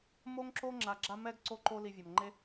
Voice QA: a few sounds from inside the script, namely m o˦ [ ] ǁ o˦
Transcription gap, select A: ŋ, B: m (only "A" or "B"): A